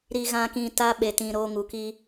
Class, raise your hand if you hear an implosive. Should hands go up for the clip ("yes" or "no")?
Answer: yes